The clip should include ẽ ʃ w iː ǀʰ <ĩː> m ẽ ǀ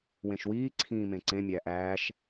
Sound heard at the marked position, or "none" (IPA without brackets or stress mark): ĩː